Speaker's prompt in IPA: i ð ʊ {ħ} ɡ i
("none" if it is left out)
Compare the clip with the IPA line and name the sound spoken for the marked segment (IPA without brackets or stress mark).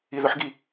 ħ